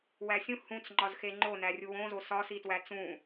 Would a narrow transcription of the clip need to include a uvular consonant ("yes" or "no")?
no